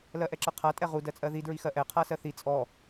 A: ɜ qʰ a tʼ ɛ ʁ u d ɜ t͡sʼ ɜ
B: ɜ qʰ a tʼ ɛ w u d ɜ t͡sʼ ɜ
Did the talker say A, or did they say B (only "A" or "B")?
A